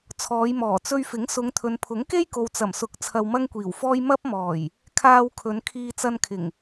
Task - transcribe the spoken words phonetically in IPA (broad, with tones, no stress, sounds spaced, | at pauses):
t͡sʰ ɔː˨˧ j m ɔː˨˩ t͡s ɵ˧ ɥ f ɪ˨˥ ŋ s ʊ˨˧ ŋ t̪ʰ ɵ˨ n pʰ ʊ˨˥ ŋ k e˥ j k o˨ w t͡s ɐ˨˩ m s ʊ˨˥ k̚ t͡sʰ ɐ˧ w m ɐ˥ ŋ kʷ iː˨˩ w f ɔː˥ j m ɐ˥ p̚ m ɔː˨˩ j | kʰ aː˧ w kʰ ɵ˨˧ n kʰ iː˧ t͡s ɐ˧ n kʰ ɪ˨˩ ŋ